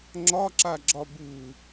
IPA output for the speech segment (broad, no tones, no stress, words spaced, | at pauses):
ŋ͡ǁɒǁaɡ͡ǁɒ bu